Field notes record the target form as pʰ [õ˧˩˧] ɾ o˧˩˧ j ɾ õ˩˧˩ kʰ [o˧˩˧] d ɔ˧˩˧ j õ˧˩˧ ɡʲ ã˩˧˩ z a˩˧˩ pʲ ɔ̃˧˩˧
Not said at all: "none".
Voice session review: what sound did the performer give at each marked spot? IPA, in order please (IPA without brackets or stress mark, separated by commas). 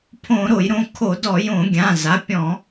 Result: õ˧˩˧, o˧˩˧